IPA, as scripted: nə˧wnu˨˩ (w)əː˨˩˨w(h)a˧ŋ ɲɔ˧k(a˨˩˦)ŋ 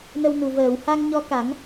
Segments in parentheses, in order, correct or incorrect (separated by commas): incorrect, correct, correct